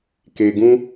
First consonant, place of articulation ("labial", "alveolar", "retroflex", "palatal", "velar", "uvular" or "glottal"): velar